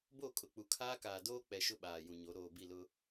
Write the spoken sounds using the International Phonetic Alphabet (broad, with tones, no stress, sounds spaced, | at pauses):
b o˦˨ kʼ ʊ˨ k͡p u˨ kʰ aː˦ k aː˨ d oː˦ k͡p ɛ˨ ʃ ʊ˦ ɓ aː˨ j ũ˨ ɲ o˨˦ ɾ oː˨ b i˦˨ l ʊ˦